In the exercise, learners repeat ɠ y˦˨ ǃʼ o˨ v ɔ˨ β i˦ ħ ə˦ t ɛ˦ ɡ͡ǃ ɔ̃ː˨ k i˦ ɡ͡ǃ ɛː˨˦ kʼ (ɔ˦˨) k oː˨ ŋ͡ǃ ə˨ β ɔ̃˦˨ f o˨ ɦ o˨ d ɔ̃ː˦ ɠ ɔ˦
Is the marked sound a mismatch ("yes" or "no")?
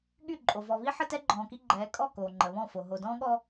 no